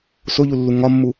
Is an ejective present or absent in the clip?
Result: absent